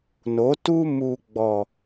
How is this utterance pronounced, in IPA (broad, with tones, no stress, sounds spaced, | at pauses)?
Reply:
n o˨˦ t u˦ m u˨ ɡ͡b ɔ˨